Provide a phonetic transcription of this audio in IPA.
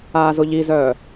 aː z ʊ ʎ i z œː

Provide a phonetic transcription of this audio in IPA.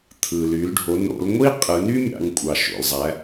t̪ʰ ɯ˩ l y˩˧ l ɖʱ o˩˧ n o̰˩˧ l ŋʷ i˥ qʼ ɯ˩˧ n y˥ mʲ ɑ̰˩˧ ŋ kʷʼ ɑ˩ ʃ o̰˩ l zˤ æ˩˧

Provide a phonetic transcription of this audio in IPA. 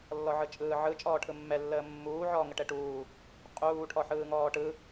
lː ɔ ʕ ɯ t͡ʃʼ ɯː ʕ ɯ t͡ʃʼ ɔː ʈʰ ɯ mː ɛ lː əː mː uː ʕ ɔː ŋ ə ʈ ɛ ʈ uː | qʼ uː ʈʰ ɔ ħ ɯː ŋ ɔː ʈ ɯ

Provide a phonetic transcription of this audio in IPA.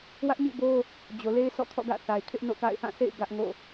w ä˦ ʔ ɲ ḭ˦˨ b o˦ | d͡ʑ o˨ l e˦ ɪ̯ s ɔ̰˦˨ kʰ ɔ̰˦˨ ɡ ä̰˦˨ θ a˨ ɪ̯ kʰ ɪ˦ ʔ n o̰˦˨ k a̰˦˨ ɪ̯ h ã˦˨ s ḛ˦˨ ɪ̯ ɡ ä˦ ʔ ŋ o̰˦˨

